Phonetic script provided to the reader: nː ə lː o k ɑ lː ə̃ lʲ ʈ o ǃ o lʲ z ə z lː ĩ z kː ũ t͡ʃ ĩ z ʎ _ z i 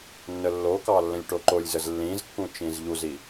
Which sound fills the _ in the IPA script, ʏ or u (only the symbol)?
u